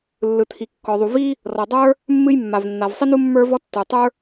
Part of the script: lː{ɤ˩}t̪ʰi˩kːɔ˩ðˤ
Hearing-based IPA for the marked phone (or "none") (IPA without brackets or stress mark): ɯ˩